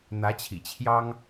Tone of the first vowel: rising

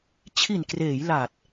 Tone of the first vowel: low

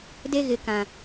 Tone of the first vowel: high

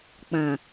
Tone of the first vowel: low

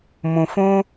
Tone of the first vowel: low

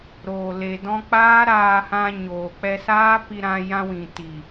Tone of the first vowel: low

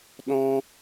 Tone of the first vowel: high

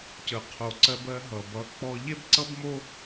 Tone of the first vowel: low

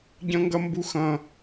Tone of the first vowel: high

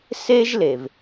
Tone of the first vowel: high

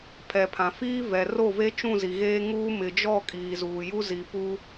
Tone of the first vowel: low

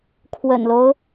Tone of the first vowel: low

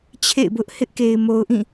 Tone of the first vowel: falling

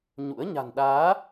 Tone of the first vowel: rising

